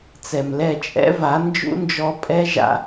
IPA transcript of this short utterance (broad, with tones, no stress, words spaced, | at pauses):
t͡sɛ˨mlɛ˦˨t͡ʃʼɛ̰˦va˨˦ nd͡ʒṵ˦nd͡ʒɔ˧ pʼɛ˦ ʒa̰˧